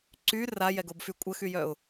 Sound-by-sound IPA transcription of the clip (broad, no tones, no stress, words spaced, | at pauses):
ǀy rajɛɡobfy kʷʼəxyjœʊ̯